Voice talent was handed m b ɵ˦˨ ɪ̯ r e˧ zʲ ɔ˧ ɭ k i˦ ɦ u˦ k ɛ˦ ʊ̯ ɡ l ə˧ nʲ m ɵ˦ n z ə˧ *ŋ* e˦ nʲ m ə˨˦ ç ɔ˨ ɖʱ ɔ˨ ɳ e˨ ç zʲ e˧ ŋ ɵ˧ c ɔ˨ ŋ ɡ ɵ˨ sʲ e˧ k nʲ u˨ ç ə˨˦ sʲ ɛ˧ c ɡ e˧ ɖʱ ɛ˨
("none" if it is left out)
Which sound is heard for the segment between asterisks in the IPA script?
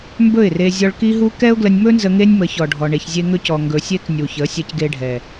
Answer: ŋ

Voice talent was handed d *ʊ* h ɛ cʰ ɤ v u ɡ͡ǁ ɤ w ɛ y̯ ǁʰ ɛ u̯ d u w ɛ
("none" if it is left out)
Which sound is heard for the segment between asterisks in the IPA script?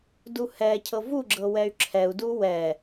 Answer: u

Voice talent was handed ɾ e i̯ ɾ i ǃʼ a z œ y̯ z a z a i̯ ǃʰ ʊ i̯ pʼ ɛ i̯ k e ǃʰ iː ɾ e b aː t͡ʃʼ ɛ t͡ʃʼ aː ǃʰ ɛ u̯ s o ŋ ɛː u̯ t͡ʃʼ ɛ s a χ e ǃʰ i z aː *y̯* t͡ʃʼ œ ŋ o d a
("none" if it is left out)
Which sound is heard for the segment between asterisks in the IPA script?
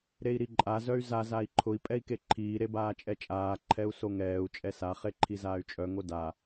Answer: y̯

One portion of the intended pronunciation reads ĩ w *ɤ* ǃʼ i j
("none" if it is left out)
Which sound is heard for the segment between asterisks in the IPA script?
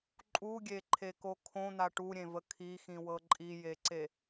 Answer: ɤ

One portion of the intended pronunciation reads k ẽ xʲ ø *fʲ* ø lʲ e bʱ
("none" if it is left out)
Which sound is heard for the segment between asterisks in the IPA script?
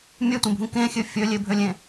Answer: fʲ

